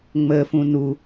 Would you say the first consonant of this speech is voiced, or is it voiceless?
voiced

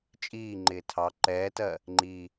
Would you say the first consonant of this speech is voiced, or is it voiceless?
voiceless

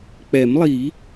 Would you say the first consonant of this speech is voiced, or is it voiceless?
voiceless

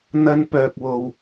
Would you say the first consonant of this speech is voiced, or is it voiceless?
voiced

